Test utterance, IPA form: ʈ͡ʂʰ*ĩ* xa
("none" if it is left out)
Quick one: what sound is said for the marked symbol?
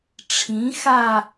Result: ĩ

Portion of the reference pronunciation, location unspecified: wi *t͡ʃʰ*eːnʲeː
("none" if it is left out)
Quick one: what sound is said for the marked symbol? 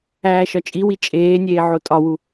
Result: t͡ʃʼ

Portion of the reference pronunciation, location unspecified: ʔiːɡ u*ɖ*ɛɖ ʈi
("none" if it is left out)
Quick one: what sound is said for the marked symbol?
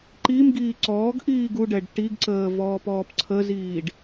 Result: ɖ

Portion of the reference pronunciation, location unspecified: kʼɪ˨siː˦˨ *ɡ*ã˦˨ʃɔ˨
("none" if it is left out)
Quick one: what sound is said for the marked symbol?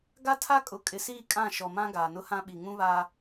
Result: kʼ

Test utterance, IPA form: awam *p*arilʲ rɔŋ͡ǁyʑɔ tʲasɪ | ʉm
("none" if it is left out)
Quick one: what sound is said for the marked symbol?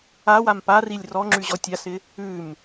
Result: p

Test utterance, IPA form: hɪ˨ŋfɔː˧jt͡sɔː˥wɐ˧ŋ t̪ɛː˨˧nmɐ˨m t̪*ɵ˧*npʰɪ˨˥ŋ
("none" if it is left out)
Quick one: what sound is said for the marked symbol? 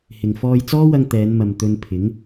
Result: ɵ˧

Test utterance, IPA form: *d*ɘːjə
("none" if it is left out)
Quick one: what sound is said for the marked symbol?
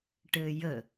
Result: ʈ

